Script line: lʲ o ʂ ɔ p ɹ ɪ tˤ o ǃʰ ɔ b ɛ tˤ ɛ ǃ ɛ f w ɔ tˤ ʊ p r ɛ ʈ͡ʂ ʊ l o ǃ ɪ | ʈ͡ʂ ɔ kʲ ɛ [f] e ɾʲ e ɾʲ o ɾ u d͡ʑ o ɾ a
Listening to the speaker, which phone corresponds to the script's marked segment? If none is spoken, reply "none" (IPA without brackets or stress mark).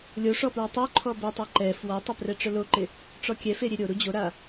f